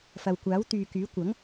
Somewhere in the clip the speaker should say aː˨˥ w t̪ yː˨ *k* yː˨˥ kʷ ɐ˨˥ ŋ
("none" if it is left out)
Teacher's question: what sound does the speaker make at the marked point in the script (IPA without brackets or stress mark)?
k